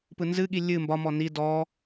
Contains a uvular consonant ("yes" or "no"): no